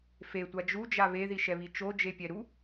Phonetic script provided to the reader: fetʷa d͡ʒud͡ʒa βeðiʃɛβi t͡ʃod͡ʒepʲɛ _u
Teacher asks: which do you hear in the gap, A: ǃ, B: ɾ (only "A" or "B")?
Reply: B